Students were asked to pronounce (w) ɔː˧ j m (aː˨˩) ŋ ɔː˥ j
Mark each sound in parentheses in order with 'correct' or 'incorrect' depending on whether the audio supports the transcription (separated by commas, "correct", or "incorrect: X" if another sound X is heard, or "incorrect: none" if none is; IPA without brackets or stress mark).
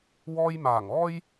correct, correct